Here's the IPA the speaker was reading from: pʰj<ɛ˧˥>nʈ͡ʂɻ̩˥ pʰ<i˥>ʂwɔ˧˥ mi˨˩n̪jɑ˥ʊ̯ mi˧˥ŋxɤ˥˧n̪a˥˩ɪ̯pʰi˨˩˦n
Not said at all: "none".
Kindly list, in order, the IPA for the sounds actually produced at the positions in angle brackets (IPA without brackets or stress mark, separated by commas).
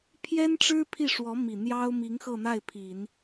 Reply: ɛ˥, i˥˩